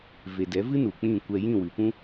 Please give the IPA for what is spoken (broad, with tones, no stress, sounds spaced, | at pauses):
v e˨ d ɛ˨˦ v ɨ˦ n u˨ k͡p ĩ˦˨ kʷ ɛ˧ j ĩ˦˨ w ɨ˨ p ũ˦